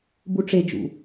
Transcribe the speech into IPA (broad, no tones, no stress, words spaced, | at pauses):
buʈ͡ʂed͡ʒṵ